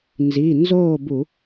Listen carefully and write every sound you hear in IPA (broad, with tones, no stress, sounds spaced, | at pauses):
n z i˩˧˩ n z oː˥˨ b u˧˩˧